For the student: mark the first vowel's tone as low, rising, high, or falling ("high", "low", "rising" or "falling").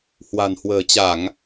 low